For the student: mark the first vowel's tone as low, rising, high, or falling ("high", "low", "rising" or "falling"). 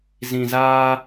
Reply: low